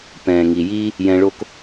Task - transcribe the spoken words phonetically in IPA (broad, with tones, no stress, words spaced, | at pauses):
pɛ̃ː˨ ŋi˨jiː˦ | jɛ̃˧ɭo˦k